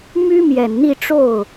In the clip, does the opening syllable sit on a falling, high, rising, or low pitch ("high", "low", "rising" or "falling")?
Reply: high